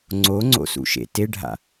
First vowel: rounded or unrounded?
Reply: rounded